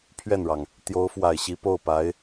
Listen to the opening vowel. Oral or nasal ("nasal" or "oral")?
oral